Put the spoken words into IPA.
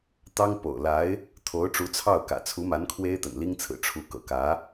t̪ ɑ˥ ŋ p o̰˨˩ ʊ̯ l a˧˥ ɪ̯ | t̪ʰ o˧˥ ʊ̯ ʈ͡ʂ u˧˥ t͡sʰ ɑ˥˩ ʊ̯ k ä̰˨˩ t͡sʰ u˧˥ m a˧˥ n kʰ w e˥ ɪ̯ t̪ ə̰˨˩ n l i˥ ŋ t͡sʰ ɹ̩˨˩ ʈ͡ʂʰ u˧˥ k ɤ̰˨˩ k ä˧˥

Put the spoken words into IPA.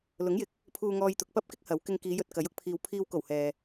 l ʊ˨˥ ŋ j ɪ˨ k̚ | pʰ uː˧ ŋ ɔː˧ j t̪ ʊ˨ k̚ p ɐ˥ p̚ k ɪ˥ k̚ h ɐ˨˥ w k ɪ˧ ŋ k iː˨˧ j ɵ˧ t̚ k ɐ˨˥ j ʊ˧ k̚ pʰ iː˨ w pʰ iː˧ w k o˨˩ w h ɛː˨

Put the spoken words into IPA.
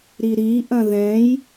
ɾ i ɾ i ʔ ɐ̃ ð ɛ̃ j

